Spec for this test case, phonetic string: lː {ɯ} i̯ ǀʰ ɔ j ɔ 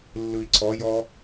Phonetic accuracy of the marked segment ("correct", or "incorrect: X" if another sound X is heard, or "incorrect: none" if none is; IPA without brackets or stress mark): correct